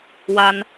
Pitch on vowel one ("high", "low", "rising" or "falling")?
high